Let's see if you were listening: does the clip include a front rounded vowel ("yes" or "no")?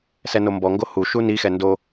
no